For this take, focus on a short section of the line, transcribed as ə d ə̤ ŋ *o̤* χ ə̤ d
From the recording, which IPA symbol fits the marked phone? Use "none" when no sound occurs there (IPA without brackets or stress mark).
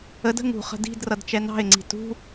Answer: ṳ